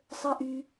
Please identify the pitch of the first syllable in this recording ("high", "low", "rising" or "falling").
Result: high